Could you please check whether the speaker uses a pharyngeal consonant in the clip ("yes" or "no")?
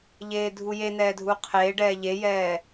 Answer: no